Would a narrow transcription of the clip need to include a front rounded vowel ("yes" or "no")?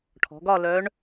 yes